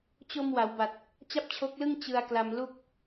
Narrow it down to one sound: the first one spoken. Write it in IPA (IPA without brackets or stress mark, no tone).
t͡ɕ